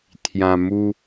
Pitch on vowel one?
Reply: low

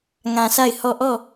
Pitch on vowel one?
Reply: low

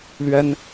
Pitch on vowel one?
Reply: high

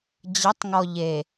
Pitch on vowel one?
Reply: rising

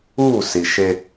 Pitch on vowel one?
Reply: falling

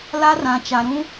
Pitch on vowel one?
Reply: high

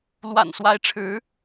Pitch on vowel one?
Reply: low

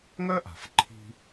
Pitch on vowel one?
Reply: high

